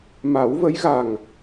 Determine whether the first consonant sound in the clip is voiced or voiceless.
voiced